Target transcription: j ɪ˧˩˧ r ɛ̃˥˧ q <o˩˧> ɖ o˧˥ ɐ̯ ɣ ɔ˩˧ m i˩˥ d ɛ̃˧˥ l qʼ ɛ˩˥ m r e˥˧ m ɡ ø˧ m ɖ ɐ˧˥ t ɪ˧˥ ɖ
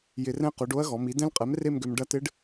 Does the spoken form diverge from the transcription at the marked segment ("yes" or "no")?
no